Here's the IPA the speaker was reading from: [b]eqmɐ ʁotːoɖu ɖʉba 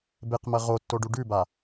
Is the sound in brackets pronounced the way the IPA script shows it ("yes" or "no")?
yes